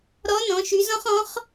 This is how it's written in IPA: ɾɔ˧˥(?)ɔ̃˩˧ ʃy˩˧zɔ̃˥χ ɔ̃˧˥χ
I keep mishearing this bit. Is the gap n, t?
n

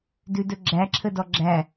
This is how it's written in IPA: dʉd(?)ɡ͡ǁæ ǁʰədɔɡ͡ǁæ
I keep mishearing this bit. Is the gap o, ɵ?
ɵ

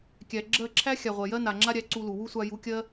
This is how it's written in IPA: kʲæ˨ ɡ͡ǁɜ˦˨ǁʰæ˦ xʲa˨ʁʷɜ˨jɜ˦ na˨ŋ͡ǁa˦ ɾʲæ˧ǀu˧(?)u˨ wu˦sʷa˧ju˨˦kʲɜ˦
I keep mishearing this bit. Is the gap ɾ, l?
l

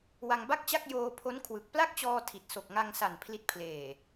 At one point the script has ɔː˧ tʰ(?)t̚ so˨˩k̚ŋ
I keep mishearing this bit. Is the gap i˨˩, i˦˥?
i˨˩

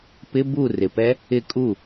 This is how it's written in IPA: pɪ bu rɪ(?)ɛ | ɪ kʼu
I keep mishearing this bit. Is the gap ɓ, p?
p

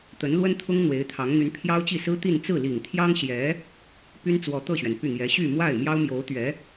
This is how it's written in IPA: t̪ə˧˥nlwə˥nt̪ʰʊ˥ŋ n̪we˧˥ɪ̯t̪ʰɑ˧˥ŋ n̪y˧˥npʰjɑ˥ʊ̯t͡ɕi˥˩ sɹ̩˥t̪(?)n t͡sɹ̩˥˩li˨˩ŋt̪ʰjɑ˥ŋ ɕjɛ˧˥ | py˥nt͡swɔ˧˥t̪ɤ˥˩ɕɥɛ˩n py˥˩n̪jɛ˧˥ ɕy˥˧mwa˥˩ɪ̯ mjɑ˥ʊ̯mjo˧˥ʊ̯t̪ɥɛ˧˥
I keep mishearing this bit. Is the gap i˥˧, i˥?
i˥˧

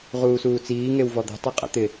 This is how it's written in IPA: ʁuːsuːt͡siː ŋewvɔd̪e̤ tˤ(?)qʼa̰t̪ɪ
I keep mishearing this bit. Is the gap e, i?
i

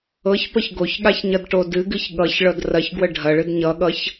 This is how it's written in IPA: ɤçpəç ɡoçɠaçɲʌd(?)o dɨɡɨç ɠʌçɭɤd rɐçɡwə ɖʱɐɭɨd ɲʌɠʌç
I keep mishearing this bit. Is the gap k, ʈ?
ʈ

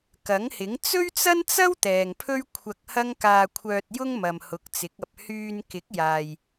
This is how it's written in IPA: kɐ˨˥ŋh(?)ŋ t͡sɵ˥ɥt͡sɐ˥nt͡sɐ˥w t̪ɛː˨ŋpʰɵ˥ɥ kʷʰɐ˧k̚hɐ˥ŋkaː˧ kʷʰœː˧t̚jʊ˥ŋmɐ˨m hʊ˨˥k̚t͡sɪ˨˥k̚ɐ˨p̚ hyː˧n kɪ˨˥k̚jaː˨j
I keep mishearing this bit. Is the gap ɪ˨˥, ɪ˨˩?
ɪ˨˥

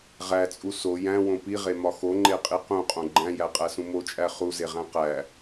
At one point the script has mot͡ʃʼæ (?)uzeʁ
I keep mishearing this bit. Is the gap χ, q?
χ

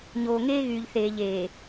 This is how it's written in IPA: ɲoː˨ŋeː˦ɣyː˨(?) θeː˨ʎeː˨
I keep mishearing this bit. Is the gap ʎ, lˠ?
ʎ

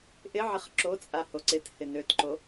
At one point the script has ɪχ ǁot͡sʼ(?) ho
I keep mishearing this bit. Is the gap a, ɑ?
a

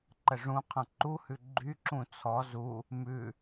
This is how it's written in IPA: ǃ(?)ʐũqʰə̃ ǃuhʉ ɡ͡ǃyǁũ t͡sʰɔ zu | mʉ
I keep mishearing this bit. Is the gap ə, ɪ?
ə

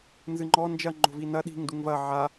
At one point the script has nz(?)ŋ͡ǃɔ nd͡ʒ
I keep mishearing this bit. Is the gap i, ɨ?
ɨ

